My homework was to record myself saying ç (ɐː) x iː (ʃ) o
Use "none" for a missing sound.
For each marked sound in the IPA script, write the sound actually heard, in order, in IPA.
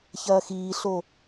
ɐː, ɬ

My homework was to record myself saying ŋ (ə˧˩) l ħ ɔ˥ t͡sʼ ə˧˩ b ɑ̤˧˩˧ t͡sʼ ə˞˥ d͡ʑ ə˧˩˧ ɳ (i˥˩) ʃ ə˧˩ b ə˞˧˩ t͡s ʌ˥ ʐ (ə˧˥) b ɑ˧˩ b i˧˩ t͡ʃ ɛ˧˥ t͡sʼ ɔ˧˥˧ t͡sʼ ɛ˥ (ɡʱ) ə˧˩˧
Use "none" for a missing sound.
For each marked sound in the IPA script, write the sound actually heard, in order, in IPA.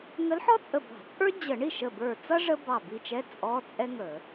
ə˧˥, i˥˩, ə˥, ŋ

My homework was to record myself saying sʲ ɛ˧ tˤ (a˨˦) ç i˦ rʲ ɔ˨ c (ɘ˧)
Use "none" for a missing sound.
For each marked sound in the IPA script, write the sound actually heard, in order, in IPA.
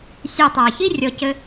a˨, ɘ˧

